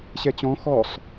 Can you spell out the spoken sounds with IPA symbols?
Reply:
ɕɛt͡ɕɔ̃ xɔsˤ

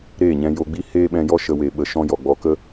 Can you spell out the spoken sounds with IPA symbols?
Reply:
ɾeː˦˨ɲɛ̃˧jo˧ɡ͡bi˦ heː˦ɓɛ̃˧jɔ˦ ʃə˧we˨ɓə˨ ʃɔ̃˦jɔ˨ɡ͡bɔ˧ kə˦

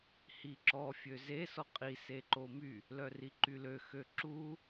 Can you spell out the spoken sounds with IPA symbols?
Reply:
hiǁɔ fʲøzesɔ qʼi seǃomy | lœriǃylø xøǁu

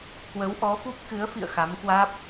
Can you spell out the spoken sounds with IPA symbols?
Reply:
kwə˨˦wʔɔ˨˦fu˦˥p̚ kɨ˨˦ə̯fḭ˧˨ə̯ xa˨˦mkwaː˦˥p̚

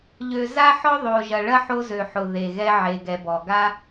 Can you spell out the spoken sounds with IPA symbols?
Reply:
ʎø˨za˥ħɔ˥ ðˤo˨ ʒɐ˨ɭɐ˥ħo˦ zø˨ ħʊ˩ ðe˩ ɣɛ˦ʕe˨ɡɛ˨bɔ˩ ɡa˦

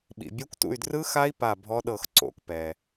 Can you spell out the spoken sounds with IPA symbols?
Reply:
ɓḭ˨ bʲɛ˦˥kʷtṵ˦˨y̯ drɯ˦˥xa˦˥i̯ pa˦˨bʱɔ˦˥ɗɤ˦˨x ǀo̰˦˨kpɛ˨

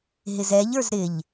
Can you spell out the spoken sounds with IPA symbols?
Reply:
ɦɪzɛʎ ə˞zɾɪʎ

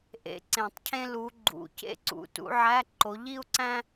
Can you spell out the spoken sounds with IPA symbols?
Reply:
ʔḛ˧˥˧ǀẽ˨˩˦tˤcʰẽ˥ lu˨˦ɡ͡ǃṵ˨˩˦cḛ˥ ǀṵ˨˦ tṵ˨˦ʕæ˧˥˧ ǃo˨˦ʎi˥u̯ǀæ̃˥

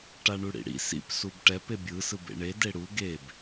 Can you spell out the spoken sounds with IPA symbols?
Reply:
ʈaɳuɽḭɽḭ sḭp subʈɛp ebʲɯ sɯbḛɳe deɽu ɡeb

